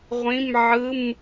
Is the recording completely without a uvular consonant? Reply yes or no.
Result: no